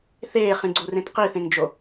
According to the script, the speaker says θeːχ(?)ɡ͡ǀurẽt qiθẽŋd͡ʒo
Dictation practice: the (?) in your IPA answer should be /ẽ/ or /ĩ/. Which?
ĩ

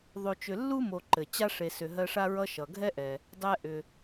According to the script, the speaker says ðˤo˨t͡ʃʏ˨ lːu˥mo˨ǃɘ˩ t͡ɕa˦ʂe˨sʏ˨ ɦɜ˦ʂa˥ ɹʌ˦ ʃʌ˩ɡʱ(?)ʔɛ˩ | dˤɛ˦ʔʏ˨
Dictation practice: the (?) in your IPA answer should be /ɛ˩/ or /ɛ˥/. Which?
ɛ˥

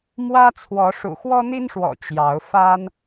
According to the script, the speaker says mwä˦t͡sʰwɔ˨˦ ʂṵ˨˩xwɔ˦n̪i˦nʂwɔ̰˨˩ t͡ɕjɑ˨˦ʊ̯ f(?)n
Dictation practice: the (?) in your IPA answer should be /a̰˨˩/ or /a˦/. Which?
a˦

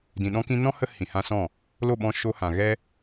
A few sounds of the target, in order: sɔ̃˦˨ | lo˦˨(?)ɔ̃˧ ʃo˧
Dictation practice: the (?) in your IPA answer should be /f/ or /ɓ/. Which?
ɓ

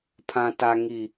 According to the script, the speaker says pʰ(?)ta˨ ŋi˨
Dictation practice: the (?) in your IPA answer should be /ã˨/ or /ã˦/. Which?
ã˨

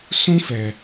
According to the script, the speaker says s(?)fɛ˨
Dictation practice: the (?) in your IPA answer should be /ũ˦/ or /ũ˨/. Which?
ũ˦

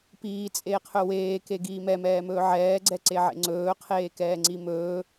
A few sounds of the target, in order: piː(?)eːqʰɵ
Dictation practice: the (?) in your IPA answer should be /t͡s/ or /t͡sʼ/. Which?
t͡sʼ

